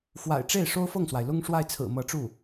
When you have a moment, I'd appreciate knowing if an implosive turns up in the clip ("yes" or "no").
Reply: no